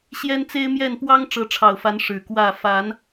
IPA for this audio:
ɕ j ɛ˦ n t͡s e˦ ɪ̯ m j ɛ˥˨ n p w ɑ˦ ŋ ʈ͡ʂ ɤ˨˦ ʈ͡ʂʰ ɑ˨˩ ʊ̯ f a˨˦ n ʂ ɻ̩˨˩ k w ä˥˨ f a˨˦ n

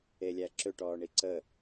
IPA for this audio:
e lʲ æ ǁ ø ʈ ɔː ɳ i ǀ ə

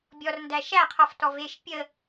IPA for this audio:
bʲ ɔ r n d æ ʃ æ qʰ ɔ f t ɔ v e ʃ pʲ ə

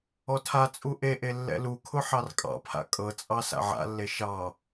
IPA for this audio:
ɔ tʰ a t͡sʼ u ʔ e ʔ e lː ɛ̰ l u kʰ ʊ ħ ɑ r kʼ ɑ̰ pʰ a̰ kʼ ɤ t͡sʼ ɑ s a̰ ʕ a̰ lː e ʃ ɑ

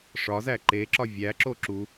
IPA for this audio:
ʂ ɒ z æ ǃ e ǁ ɒ vʲ æ ǁ o ǁ u

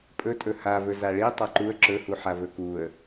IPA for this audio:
pʼ ɵ tʼ ɵ h a v ɵ z a ɭ i tˤ a ǃ u ə̯ ǁ ɵ h u ħ a v ɵ k u ə̯

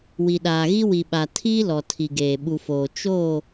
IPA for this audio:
w i˨ ɗ aː˨ ɣ i˦ w i˨ ɓ a˨ tʰ iː˦ l ɔ˨ tʰ i˨ ɡ eː˨ ɓ u˨ f oː˨ t͡ʃ oː˦˨

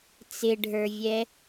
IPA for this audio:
t͡s ɪ ɖʱ ə˞ vʲ ɛ

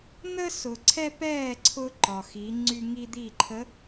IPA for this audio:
n̪ ə˦ s ʊ˨ ǀʰ ɛ˦ p ɛː˦˨ ǀʰ ʊ˦ ǃ ɒ˨ x i˨˦ ŋ͡ǀ y˦ ŋ i˦ d̪ i˦˨ ǃʰ ə˨˦

